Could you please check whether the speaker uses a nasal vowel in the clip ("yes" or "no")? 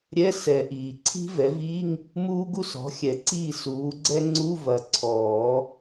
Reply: no